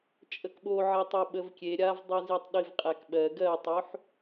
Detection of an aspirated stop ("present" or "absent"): absent